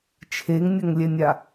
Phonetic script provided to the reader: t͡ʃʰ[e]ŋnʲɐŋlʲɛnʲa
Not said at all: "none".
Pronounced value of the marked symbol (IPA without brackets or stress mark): e